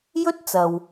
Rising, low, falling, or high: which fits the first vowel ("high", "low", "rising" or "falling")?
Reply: high